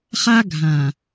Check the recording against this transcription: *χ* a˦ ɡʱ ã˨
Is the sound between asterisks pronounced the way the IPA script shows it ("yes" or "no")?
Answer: yes